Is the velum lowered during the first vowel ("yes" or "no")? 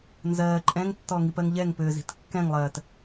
no